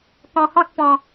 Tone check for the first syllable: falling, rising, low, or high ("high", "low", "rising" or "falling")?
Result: low